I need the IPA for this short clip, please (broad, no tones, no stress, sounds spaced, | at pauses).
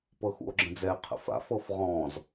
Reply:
p ɤ x ṵ o̯ ɡ͡ǁ ə̃ d͡z ɛ e̯ qʰ ə̰ f a̰ f ɤ f ʁ ɔ̃ z